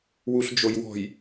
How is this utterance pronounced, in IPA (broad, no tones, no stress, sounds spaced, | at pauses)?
w u ɬ d͡ʒ o j w ɔ̤ j